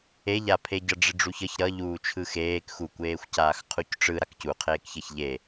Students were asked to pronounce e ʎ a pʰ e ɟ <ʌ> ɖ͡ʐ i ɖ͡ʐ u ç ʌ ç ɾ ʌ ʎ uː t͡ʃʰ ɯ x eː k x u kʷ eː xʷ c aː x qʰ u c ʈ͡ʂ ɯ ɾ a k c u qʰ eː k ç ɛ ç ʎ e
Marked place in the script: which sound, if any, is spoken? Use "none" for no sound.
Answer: ʌ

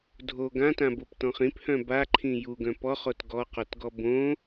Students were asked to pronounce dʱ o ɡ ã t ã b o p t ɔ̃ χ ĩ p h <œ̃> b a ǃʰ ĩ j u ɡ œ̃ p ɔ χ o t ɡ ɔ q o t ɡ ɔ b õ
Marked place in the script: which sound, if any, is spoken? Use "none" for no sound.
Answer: œ̃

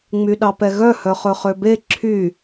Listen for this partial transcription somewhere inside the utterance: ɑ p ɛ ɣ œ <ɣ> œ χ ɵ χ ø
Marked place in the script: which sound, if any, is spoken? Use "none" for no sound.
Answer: h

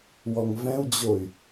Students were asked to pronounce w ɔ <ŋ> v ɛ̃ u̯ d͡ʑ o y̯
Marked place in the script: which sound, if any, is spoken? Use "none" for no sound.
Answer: ŋ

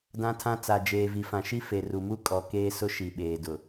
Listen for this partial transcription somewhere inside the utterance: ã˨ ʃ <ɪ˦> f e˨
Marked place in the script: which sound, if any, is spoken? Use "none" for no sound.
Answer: i˦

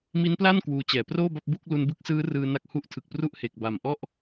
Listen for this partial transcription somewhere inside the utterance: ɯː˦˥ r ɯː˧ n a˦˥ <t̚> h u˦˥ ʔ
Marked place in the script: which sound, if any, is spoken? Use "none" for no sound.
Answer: k̚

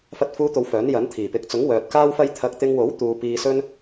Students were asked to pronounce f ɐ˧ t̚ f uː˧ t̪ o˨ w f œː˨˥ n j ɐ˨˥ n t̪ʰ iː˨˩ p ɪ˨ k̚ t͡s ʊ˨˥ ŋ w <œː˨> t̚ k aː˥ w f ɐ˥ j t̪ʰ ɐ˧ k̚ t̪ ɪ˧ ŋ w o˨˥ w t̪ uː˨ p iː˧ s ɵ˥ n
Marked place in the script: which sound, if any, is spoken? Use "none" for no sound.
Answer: œː˨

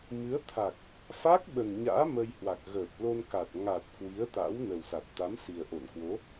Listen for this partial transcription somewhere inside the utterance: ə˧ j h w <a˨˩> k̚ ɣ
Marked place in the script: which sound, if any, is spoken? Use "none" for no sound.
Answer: a˨˩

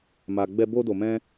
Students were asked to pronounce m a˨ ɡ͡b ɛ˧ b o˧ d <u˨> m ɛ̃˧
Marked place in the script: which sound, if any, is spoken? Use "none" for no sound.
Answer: o˨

